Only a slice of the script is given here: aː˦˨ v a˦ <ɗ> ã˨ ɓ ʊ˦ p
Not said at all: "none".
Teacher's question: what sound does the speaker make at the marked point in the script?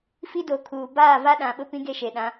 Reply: ɗ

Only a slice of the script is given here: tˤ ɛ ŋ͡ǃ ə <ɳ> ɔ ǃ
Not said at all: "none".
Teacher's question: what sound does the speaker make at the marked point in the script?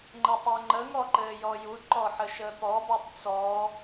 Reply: ŋ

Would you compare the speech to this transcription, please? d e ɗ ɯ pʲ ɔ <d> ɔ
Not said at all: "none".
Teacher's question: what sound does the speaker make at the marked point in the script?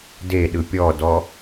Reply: d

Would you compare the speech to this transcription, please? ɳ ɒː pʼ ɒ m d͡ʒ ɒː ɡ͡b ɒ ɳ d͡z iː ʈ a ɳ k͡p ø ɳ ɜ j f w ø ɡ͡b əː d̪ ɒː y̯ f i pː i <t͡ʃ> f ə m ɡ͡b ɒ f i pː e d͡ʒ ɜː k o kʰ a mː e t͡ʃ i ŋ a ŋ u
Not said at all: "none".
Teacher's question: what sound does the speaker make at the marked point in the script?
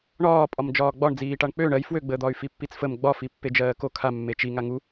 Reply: t͡s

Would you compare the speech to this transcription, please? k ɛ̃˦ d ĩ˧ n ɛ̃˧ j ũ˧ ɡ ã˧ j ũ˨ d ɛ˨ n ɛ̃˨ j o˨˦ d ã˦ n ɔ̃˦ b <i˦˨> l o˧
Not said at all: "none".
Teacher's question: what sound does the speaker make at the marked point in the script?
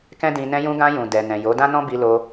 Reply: i˧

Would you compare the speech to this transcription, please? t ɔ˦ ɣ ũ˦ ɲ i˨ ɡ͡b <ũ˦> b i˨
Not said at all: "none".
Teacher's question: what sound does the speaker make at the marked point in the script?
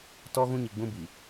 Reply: ũ˦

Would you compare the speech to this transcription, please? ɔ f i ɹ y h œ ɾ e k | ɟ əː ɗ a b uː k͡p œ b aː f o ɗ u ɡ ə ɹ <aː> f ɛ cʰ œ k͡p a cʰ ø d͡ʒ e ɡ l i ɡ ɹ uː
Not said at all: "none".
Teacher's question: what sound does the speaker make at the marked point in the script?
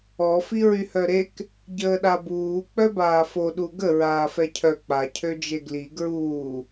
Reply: aː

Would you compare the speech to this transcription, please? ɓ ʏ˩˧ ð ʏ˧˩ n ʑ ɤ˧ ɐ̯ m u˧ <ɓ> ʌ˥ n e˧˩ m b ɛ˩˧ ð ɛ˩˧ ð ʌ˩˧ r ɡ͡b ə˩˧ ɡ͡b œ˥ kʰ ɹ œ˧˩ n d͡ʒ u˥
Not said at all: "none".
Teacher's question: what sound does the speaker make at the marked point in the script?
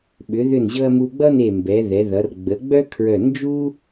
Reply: ɡ͡b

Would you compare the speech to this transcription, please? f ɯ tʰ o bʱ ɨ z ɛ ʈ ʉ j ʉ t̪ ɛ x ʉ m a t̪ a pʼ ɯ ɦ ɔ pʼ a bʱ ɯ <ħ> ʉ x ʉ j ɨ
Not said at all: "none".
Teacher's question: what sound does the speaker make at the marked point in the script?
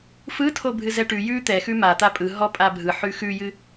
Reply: ħ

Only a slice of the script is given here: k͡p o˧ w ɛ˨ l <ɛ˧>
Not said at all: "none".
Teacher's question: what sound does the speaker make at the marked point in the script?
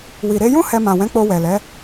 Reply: ɛ˨˦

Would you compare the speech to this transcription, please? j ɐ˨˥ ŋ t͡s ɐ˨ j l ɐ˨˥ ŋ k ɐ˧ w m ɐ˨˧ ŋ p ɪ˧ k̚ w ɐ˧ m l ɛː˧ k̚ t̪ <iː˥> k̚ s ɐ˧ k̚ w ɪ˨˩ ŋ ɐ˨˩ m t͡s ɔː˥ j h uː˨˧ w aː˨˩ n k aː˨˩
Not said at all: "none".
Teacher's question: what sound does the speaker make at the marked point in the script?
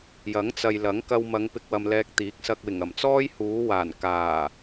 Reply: iː˨˥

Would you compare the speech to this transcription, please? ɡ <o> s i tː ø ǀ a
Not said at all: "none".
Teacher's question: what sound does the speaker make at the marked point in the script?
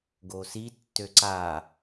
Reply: o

